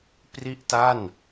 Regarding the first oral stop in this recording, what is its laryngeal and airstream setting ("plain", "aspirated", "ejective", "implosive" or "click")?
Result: plain